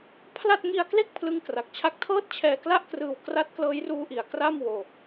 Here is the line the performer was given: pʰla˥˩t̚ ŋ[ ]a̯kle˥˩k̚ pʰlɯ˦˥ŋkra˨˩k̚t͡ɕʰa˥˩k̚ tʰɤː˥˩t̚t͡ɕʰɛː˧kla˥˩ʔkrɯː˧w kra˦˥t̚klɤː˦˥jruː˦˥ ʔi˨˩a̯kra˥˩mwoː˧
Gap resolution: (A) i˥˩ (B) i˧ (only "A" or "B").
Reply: B